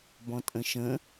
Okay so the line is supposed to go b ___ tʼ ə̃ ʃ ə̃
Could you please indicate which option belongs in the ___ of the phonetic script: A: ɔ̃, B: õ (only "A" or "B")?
A